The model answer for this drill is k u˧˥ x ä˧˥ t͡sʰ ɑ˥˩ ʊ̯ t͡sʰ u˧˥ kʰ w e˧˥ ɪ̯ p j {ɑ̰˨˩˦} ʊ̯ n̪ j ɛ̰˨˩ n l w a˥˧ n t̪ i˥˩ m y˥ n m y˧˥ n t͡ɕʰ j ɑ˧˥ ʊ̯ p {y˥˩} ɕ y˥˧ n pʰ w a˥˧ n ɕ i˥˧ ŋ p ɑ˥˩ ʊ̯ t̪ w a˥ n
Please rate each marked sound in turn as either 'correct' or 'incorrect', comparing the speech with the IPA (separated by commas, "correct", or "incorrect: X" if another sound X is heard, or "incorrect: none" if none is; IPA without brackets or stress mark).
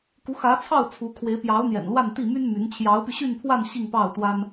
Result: incorrect: ɑ˧˥, incorrect: y˧